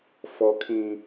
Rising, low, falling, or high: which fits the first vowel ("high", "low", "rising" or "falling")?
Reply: low